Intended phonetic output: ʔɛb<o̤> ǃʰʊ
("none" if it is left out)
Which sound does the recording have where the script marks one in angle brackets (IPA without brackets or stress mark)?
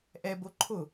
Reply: o